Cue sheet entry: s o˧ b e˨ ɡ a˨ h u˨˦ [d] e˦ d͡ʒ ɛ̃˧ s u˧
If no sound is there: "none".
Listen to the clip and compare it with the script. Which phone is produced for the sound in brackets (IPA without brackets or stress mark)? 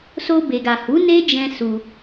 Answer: n